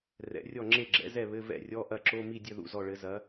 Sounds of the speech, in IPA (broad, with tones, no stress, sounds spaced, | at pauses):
r ɛ̰˩˥ rʲ ɔ˥˩ ŋ͡ǁ e˥˩ ɡ͡ǁ ɛ̰˩˥ z ɛ˥˩ β ɘ˧˥˧ v ɛ̰˥˩ rʲ ɔ˧˥˧ ʔ ɐ˥˩ ǁ o˧˥˧ m i˥˩ dʲ ɘ˥˩ ð ṵ˥˩ z ɔ˥˩ ɭ ɘ˩˥ z ɐ˩˥